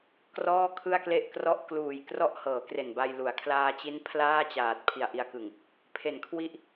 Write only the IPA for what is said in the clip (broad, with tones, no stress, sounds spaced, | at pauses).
k r ɔː˥˩ kʰ ɯ˥˩ a̯ k l e˥˩ ʔ k r ɔ˥˩ ʔ k l uː˨˩ j k r ɔ˥˩ ʔ h ɤː˩˦ k r e˨˩ n b a˧ j l u˨˩ a̯ kʰ l aː˧ t͡ɕ i˦˥ n pʰ l aː˥˩ t͡ɕ aː˨˩ t̚ pʰ i˨˩ a̯ ʔ i˧ a̯ k ɯ˨˩ ŋ | pʰ e˩˦ n kʰ w i˦˥ ʔ